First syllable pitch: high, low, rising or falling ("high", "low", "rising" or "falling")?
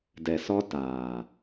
low